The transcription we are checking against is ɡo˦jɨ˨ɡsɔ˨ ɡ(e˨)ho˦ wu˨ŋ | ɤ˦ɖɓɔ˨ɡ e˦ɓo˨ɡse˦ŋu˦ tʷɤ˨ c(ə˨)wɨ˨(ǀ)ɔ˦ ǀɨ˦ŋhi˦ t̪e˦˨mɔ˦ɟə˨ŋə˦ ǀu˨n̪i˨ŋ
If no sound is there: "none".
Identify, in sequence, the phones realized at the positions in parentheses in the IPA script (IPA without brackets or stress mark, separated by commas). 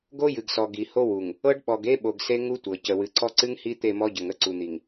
i˨, ə˨, ǀ